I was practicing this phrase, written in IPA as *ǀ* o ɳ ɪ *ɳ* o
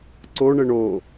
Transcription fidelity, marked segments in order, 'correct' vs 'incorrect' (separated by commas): correct, correct